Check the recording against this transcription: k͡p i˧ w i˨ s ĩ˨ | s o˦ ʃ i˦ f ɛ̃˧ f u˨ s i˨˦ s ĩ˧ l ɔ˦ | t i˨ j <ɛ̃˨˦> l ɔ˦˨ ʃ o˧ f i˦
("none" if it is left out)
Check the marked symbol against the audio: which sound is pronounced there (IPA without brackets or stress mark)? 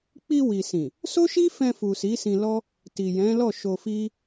ɛ̃˨˦